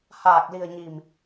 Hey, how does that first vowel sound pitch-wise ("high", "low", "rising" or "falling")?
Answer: low